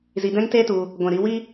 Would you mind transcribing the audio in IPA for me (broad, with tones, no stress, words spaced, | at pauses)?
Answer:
zi˧dɛ̃˦ŋte˦tu˧ | ɡʷɛ̃˨ɾi˧wi˦